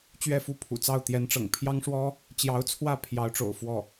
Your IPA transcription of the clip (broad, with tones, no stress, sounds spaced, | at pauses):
t͡ɕ ɥ ɛ˥˩ f u˥ pʰ ṵ˨˩ t͡s ɑ˥˩ ʊ̯ t̪ j ɛ˧˥ n ʈ͡ʂ ɤ̰˨˩ ŋ pʰ j ɑ˥ ŋ ʂ w ɔ˥ | t͡ɕ j ɑ˧˥ ʊ̯ t͡sʰ w ä˥˩ pʰ j ɑ˧˥ ʊ̯ ʈ͡ʂ o̰˨˩ ʊ̯ f w ɔ˥˩